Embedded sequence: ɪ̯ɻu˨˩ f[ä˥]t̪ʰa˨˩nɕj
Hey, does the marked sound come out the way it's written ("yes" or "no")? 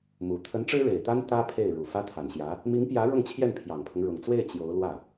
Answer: yes